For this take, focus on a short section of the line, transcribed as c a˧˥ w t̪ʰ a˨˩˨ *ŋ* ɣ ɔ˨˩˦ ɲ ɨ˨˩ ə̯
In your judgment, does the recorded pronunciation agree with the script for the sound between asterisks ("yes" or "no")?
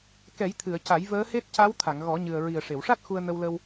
yes